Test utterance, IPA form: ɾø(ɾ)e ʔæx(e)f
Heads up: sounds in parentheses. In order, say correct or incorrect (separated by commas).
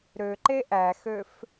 incorrect, incorrect